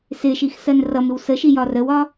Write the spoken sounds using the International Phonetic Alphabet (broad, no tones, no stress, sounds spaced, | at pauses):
s ɪ ʃ i x s ɜ n r ʌ m ɪ w s ə ʃ i j ɒ r ə w ɒ